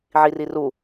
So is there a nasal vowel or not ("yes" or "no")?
no